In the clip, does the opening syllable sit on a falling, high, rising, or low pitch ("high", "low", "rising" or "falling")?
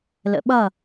rising